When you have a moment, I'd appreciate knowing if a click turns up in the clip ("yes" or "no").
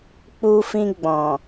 no